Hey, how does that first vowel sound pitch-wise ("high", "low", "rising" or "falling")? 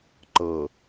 low